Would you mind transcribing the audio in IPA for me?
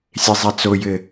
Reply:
sʲ e zˤ a t͡s o j ɘ

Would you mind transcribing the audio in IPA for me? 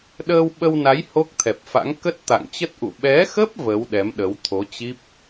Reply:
ɗ əː˧ w ɓ ə˧ w n a˨˦ j h o˦˥ k̚ t̪ʰ ɛ˨˩ p̚ f a̰˧˥ ŋ k ə˦˥ t̚ t̪ a̰˧˨ ŋ t͡ɕ ə˦˥ t̚ ʔ ṵ˧˨ ɓ ɛ˨˦ x ə˦˥ p̚ v ə˨˦ w ɗ ɛ˨˦ m ɗ ə˨˦ w t̪ʰ o˨˦ t͡ɕ i˦˥ p̚

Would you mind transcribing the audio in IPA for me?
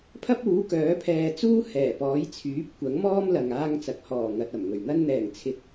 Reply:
pʰ ɐ˥ p̚ uː˨˥ k œː˨˥ pʰ ɛː˧ t͡s uː˥ h ɛː˨˩ p ɔː˨˥ j t͡sʰ yː˨˥ p̚ kʷ ɐ˨˥ ŋ m ɔː˥ m l ɐ˨ ŋ aː˧ ŋ t͡s ɐ˨ k̚ h ɔː˨˩ ŋ ɐ˨ t̚ ɐ˨˩ m ŋ ɵ˨˩ ɥ n̪ ɐ˧ n n̪ ɛː˨˩ ŋ t͡sʰ ɪ˨ k̚

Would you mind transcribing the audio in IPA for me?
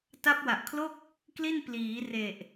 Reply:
t a˦˥ p̚ w a˨˩ ʔ kʰ l o˥˩ k̚ | k l i˥˩ n p l iː˩˦ r e˨˩ ʔ

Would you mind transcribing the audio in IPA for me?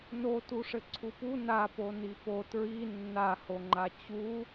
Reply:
n o t u ʂ ɘ ǀʰ u p u n a p o n i p o t ɹ i nː a h o ŋ͡ǃ a t͡ɕ u

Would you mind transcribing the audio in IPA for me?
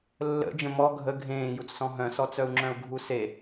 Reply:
lː ə̰ d͡ʒ ə̃ m ɔ ɡʱ ə ɡʱ ẽː j u t͡s s ɔ̃ ɦ œ̃ s ɔ t͡s œ u̯ ŋ͡ǁ œ̃ u̯ ɡʱ u s e

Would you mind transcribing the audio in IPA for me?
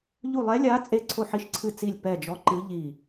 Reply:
ʎ u˦˨ lˠ ɛ˧˥ lʲ a˧˥ t͡sʼ e˦˨ ǀʰ o˦˨ ħ i˧˥ ʃ ǀʰ ɨ˦˨ t͡s i˦˨ lʲ p ɛ˦˨ d͡ʒ ɔ˧˥ ǃ ɨ˧˥ ʎ i˦˨

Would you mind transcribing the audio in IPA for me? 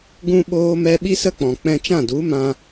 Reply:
ɡ ũ˧ ɓ oː˦ m ɛ˦ ɓ i˦ s ə˦ k͡p ɔ̃˨ k͡p ɛ̃˧ t͡ʃ ã˦˨ d u˨˦ m ã˧

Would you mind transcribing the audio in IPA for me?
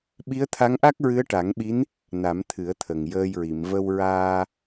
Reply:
ɓ i˧˥ ə̯ t̪ʰ a˧˥ ŋ ʔ a˦˥ k̚ ɹ ɨ˧˥ ə̯ ʈ a˨˩˦ ŋ ɓ i˧˥ n | n a˨˩˦ m t̪ʰ ɨ˨˩˦ ə̯ t̪ʰ ə˨˩ ŋ j əː˧ j ɹ i˨˩˨ m v ə˧ w ɹ aː˧

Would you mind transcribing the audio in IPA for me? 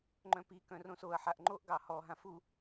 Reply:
ŋ͡ǃ œ̃ p i k œ̃ r õ s o ɐ̯ ħ a ʔ ŋ͡ǃ o ʔ ɡ ɑ h ɔ ɦ ã f u

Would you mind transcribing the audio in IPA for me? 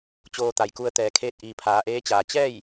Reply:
t͡ɕ oː˧ t̪ a˩ j k u˧ ə̯ t̪ ɛː˩ kʰ eː˧ t̚ ʔ iː˩ pʰ aː˩˧ ʔ eː˧˥ t͡ɕ aː˩ t͡ɕ ɛː˥˨ j

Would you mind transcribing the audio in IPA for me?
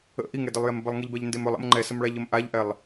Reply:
ə̰ ʔ i ŋ ɛ d ə lˠ j ɛ m b ə lˠ ŋ i ʎ b ɛ ʎ n d e m ɵ lˠ ə̰ m ŋ͡ǃ ɛ s ə m ɭ a ʎ ə m ʔ a ʎ ʔ ɛ lˠ

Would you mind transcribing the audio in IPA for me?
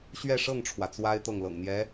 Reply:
ɕ ɥ ɛ˥˧ ʂ ɤ˥˩ ŋ ʈ͡ʂʰ w ä˩ t͡s w a˥ ɪ̯ t̪ ɤ˥˩ ŋ l ɤ̰˨˩ ŋ n̪ j ɛ˧˥

